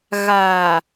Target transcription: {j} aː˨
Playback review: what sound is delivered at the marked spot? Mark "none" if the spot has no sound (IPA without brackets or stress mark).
ɣ